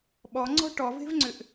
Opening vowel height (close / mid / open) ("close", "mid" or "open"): mid